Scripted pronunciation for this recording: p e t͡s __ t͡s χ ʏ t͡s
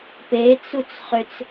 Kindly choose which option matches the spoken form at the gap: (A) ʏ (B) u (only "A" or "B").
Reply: B